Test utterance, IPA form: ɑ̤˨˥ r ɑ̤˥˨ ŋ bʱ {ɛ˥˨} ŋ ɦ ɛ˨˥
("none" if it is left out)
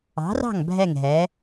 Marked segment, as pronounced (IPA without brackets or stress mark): ɛ˥˨